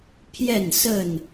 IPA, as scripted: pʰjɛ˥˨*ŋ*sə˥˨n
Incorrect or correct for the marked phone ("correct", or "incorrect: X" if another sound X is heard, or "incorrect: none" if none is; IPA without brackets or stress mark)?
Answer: incorrect: n